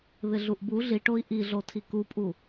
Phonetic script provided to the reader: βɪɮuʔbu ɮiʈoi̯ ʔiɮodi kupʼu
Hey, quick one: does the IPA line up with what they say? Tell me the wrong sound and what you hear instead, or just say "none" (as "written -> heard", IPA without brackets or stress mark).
d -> tʰ